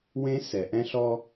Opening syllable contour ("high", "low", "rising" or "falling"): high